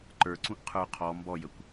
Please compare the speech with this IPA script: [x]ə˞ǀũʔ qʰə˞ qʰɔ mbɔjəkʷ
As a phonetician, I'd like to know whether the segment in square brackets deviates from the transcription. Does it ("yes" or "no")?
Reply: yes